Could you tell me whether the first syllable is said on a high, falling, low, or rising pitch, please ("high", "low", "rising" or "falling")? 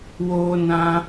high